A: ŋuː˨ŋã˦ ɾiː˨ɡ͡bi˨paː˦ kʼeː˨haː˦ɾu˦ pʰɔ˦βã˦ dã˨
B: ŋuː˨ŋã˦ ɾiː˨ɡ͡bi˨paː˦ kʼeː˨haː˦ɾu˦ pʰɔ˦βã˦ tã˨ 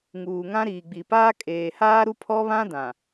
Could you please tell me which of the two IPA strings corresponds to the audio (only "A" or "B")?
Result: A